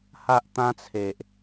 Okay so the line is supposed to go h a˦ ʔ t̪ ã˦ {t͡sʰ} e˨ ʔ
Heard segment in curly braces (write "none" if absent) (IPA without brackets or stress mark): t͡sʰ